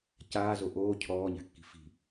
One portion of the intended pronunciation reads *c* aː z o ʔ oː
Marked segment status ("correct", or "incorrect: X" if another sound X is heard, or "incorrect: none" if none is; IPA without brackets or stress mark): correct